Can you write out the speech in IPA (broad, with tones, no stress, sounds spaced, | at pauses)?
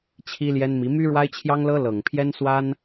t͡ɕʰ i˥ l j ɛ˥ n m i˧˥ m y˥ ɻ w a˥ ɪ̯ t͡ɕʰ j ɑ˥ ŋ l ɤ˥ l ɤ˨˩ ŋ pʰ j ɛ˥ n s w a˥ n